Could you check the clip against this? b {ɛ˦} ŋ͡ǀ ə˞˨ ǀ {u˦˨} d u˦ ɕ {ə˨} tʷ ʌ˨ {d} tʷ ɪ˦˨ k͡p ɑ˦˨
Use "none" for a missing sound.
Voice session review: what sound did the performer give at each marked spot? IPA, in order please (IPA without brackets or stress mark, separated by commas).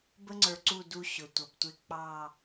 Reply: ə˦, u˦˨, ʊ˨, b